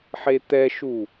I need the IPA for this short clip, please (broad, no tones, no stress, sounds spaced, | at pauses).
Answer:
ħ e t̪ ɛ ʃ u